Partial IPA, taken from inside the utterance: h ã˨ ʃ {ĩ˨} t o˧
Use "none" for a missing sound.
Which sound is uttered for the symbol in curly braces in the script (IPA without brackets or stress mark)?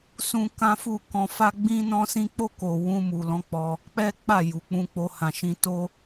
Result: ĩ˨